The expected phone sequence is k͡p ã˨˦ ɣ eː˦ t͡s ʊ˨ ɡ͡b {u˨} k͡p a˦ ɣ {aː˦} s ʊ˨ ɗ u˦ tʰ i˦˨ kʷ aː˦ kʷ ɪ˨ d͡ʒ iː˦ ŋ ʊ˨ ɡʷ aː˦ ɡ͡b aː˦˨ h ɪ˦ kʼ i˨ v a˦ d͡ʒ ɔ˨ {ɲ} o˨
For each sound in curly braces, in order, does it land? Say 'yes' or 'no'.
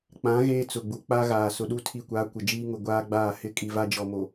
yes, no, no

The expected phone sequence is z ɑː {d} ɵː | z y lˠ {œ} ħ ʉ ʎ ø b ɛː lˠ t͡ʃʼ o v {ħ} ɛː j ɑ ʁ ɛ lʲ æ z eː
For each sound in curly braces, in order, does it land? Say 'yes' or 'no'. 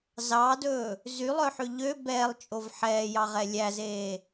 yes, yes, yes

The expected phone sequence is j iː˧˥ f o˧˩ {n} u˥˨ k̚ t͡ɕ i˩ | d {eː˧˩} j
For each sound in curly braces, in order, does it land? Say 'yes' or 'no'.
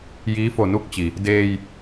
yes, no

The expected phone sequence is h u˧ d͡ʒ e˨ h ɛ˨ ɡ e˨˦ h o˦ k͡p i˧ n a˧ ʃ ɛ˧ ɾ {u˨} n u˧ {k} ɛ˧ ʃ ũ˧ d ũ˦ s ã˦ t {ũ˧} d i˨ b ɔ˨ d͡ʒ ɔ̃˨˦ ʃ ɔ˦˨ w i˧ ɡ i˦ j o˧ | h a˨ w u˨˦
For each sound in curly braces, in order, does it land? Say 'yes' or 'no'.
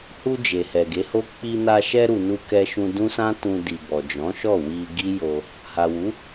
yes, yes, yes

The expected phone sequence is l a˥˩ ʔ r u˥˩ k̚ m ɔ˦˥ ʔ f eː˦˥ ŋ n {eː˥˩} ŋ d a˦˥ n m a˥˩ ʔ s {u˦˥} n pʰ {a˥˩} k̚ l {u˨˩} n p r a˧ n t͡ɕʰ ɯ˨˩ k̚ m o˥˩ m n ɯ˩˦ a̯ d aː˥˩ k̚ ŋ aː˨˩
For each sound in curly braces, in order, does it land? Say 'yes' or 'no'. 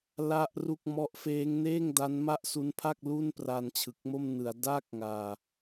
yes, yes, yes, no

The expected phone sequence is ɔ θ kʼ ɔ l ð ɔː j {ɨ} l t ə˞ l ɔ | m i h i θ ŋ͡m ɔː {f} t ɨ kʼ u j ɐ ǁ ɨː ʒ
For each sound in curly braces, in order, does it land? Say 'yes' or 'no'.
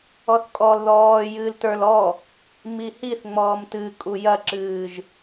no, no

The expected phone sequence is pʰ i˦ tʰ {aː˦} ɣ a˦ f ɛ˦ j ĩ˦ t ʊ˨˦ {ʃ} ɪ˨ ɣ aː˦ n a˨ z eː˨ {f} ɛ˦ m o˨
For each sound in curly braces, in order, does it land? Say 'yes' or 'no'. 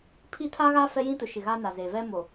no, yes, no

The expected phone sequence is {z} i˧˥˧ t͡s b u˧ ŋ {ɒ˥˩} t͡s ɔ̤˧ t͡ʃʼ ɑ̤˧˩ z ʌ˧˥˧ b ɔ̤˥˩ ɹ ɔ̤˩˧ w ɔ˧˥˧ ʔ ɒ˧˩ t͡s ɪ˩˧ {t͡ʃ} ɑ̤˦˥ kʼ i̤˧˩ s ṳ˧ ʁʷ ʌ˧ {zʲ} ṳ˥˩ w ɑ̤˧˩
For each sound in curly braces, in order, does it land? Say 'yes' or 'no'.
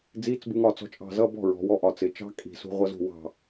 no, yes, yes, no

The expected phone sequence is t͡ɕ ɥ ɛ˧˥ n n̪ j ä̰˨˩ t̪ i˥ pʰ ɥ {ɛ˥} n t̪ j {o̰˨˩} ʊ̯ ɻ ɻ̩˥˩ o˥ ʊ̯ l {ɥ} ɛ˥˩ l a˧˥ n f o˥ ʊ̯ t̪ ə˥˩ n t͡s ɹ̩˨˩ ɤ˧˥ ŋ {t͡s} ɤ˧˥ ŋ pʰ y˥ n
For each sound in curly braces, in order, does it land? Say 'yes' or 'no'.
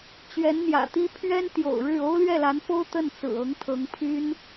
yes, yes, yes, no

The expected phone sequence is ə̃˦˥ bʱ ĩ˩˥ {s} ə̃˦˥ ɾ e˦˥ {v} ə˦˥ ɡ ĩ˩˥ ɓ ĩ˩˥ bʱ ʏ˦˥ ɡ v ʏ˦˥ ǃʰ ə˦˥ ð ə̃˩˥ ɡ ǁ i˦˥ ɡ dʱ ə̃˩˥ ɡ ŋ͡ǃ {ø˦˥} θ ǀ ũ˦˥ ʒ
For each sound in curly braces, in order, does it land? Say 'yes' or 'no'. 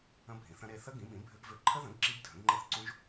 no, no, no

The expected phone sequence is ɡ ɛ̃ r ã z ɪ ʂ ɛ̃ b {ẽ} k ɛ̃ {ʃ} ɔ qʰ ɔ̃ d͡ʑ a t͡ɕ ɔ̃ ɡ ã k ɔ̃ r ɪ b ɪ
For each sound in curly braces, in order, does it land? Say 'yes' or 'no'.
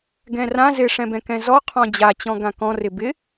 no, no

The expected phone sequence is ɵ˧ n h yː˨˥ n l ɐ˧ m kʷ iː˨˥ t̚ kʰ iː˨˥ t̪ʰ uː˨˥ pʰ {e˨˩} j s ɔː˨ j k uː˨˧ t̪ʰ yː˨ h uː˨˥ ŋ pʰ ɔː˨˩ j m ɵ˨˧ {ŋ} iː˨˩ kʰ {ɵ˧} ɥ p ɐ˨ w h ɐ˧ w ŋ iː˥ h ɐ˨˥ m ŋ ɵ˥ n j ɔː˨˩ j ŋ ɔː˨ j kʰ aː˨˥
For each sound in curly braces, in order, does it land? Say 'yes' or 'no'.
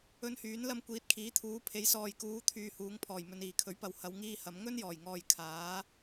no, no, no

